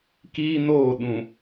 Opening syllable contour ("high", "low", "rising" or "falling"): high